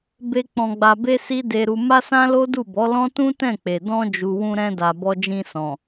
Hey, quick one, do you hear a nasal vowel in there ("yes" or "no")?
yes